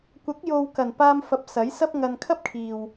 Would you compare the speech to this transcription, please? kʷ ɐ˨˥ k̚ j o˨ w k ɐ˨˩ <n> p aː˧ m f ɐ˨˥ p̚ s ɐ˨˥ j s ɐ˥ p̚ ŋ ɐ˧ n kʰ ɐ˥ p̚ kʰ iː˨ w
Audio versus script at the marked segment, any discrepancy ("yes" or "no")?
no